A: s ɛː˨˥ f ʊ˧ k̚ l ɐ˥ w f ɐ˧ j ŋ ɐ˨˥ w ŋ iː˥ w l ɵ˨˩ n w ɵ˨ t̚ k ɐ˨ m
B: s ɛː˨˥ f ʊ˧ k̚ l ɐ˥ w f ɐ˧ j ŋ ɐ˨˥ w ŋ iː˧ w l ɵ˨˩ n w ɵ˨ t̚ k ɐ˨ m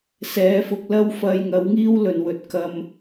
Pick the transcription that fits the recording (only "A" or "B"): A